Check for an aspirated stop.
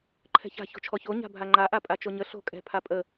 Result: present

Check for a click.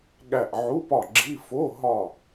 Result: present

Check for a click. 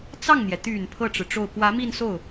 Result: absent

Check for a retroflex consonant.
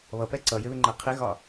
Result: absent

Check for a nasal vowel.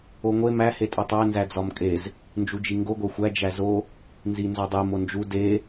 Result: absent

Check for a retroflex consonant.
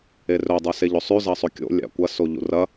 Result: absent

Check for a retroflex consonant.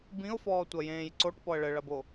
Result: present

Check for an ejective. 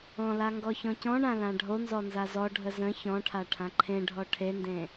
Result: absent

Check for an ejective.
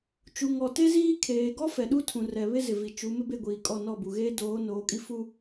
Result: present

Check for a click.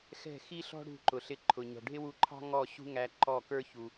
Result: present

